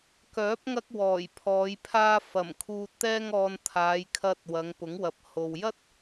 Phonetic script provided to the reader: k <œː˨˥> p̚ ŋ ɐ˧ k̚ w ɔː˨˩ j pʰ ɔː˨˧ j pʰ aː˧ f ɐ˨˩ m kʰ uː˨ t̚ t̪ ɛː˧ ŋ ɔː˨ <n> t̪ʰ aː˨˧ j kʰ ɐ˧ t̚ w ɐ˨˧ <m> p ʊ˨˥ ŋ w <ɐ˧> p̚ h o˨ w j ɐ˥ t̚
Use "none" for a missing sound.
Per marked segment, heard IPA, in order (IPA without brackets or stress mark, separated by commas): œː˨˥, n, ŋ, ɐ˨˥